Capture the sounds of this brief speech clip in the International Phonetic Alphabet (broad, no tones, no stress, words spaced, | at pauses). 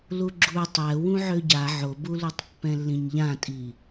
luɡ͡ǁu tˤɛ wũʕøɟa ʕobulutˤ pːɛ̃lːĩɲʎãtʼi